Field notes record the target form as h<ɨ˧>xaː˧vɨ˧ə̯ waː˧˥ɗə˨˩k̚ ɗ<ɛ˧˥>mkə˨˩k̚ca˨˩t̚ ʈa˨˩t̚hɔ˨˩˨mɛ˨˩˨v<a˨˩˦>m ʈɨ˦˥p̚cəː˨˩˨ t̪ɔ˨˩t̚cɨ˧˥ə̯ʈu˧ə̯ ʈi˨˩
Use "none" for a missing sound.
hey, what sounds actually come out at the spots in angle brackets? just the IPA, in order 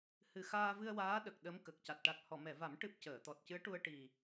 ɨ˨˩, ə˧˥, a˨˩˦

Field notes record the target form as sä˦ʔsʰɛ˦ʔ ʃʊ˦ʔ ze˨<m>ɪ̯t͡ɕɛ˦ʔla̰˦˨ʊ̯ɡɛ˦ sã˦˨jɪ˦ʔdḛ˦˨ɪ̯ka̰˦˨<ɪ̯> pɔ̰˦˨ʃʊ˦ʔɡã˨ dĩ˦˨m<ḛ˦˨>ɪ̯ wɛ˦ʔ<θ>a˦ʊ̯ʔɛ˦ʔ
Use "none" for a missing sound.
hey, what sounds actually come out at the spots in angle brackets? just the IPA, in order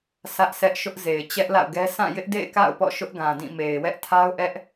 none, ʊ̯, e˨, tʰ

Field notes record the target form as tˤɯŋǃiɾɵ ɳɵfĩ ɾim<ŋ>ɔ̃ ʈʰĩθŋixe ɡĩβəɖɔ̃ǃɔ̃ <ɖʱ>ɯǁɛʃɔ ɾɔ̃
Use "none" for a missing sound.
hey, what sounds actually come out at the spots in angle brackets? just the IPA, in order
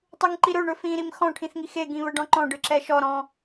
x, ɖ

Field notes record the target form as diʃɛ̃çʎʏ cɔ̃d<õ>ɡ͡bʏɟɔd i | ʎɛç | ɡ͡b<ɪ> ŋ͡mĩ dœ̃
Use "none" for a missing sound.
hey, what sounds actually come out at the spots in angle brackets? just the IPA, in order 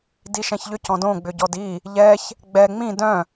õ, ɛ

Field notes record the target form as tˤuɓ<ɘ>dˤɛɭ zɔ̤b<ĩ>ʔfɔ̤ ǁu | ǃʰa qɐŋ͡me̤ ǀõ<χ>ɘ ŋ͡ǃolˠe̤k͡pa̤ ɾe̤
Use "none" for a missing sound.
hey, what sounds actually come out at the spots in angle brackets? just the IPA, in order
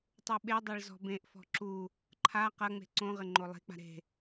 e, ẽ, ʁ

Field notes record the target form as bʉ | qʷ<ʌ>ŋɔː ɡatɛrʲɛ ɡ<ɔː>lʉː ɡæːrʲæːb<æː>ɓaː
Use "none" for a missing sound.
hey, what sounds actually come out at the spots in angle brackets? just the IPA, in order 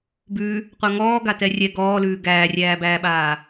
a, ɔː, æː

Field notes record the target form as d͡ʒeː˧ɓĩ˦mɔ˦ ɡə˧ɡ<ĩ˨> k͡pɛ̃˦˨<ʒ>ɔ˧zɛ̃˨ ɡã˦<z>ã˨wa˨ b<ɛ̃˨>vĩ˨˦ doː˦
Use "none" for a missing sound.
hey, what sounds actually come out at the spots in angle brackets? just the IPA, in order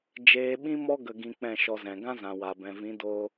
ĩ˧, ʃ, z, ɛ̃˨

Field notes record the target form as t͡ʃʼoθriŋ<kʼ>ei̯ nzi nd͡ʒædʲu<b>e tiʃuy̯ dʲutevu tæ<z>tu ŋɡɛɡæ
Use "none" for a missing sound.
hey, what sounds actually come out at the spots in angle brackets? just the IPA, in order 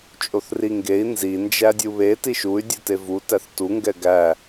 ɡ, β, θ

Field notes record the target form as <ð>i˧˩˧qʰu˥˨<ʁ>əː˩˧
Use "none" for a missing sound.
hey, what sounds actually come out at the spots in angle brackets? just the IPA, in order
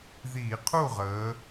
ð, ʁ

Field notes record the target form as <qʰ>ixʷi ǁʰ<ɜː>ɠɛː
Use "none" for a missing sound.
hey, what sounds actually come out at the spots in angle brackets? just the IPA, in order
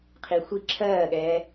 qʰ, ɜː

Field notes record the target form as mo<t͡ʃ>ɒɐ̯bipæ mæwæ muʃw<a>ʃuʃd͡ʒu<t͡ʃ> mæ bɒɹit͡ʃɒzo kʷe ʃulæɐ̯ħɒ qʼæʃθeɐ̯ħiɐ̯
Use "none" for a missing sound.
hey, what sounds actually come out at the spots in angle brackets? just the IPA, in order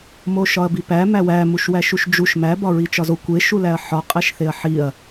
ʃ, æ, ʃ

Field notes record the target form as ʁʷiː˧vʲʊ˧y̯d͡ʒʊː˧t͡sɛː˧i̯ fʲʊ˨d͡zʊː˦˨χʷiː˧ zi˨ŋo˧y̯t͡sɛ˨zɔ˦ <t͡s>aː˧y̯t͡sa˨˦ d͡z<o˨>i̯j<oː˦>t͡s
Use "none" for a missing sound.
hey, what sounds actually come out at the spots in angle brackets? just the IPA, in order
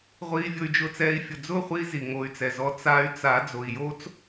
t͡s, o˨, oː˦

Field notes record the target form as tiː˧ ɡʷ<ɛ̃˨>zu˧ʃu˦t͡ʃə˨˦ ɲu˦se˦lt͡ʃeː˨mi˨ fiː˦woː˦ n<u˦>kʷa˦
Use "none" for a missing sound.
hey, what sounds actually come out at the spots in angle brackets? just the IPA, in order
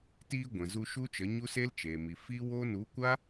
ɛ̃˨, u˨˦

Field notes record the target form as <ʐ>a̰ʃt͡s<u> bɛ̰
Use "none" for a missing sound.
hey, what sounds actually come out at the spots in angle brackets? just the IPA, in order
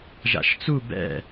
ʒ, u

